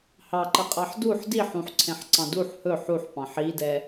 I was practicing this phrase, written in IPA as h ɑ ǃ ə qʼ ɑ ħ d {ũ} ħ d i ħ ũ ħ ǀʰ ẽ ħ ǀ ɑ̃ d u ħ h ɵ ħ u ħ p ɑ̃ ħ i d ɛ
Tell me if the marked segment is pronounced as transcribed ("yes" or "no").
no